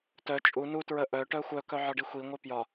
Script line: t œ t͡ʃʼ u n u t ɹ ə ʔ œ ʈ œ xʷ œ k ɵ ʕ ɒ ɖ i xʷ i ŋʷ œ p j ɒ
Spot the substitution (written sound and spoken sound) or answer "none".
ɵ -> œ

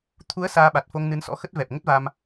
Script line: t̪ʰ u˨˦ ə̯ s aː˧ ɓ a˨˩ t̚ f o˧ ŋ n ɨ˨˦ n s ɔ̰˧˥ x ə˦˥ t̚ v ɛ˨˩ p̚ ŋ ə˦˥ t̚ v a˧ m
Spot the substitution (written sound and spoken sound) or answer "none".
none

